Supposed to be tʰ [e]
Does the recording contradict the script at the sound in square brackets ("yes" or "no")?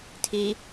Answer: yes